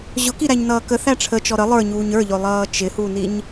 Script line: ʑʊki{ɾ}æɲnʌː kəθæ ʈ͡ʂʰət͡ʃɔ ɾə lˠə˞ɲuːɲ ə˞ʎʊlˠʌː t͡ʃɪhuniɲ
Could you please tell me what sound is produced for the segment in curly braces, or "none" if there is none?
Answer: ɾ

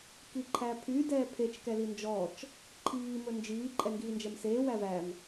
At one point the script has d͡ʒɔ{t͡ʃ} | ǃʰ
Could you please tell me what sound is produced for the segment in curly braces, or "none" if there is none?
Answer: t͡ʃ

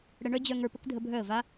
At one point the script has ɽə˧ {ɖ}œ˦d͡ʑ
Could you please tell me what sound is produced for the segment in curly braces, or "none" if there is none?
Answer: ɳ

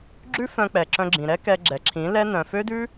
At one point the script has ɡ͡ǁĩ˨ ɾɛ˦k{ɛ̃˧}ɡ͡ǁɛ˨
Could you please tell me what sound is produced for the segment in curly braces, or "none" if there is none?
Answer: ɛ˧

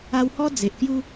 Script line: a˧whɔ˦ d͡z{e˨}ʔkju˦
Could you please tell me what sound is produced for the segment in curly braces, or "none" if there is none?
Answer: e˨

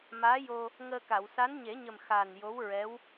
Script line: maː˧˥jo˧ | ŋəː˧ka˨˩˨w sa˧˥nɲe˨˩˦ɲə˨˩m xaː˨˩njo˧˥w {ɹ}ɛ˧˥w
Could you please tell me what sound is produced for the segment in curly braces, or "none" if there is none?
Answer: ɹ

